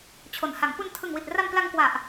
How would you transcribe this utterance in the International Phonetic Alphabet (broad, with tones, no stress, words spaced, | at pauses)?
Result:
t͡ɕʰo˩˦nha˩˦ŋ pu˧ntʰɯ˨˩ŋwi˨˩t̚ ra˧mpla˧ŋkwa˨˩ʔ